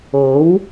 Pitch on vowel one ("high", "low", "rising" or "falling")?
rising